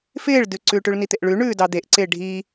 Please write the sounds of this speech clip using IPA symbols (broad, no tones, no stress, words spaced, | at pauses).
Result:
fɪːɭdʉǀʉʈʉɭ nit̪ɪʔɭʉ ɳʉːdɑd̪eʔǀɪː ɖʱi